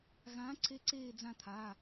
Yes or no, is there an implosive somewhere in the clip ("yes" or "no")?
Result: no